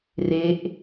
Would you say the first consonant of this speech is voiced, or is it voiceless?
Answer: voiced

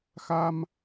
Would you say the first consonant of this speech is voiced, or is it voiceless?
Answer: voiceless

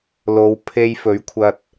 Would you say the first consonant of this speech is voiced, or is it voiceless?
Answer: voiced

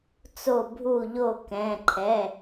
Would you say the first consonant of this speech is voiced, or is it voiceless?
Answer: voiceless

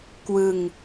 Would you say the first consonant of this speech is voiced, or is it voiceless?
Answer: voiceless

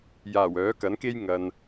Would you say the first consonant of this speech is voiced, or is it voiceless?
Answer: voiced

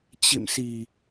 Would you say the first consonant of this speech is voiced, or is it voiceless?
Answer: voiceless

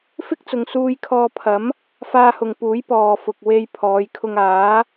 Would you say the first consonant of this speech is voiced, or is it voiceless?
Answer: voiceless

